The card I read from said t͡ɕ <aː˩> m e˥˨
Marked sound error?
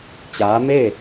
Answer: yes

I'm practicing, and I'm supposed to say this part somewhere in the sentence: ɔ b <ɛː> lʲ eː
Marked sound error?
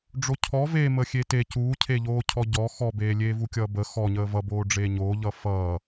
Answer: yes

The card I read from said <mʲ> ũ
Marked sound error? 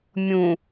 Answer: no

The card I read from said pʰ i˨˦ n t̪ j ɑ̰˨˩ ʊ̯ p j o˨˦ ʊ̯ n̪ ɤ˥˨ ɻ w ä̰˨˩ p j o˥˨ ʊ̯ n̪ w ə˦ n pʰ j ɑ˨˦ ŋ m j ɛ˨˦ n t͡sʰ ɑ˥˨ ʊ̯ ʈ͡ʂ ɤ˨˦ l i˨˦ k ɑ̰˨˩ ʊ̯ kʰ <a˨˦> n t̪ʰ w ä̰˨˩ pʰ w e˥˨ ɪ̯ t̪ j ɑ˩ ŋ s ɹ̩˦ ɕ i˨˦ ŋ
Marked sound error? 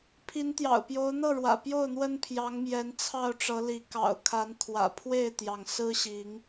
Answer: no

